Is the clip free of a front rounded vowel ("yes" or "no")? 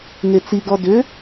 no